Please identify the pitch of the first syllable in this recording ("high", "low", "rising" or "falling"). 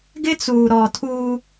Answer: high